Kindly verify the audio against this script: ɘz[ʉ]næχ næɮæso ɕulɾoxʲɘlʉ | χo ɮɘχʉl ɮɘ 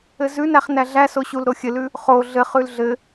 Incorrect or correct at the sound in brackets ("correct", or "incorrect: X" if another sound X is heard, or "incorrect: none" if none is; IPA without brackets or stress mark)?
correct